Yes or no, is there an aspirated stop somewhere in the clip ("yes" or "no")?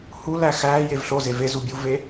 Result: no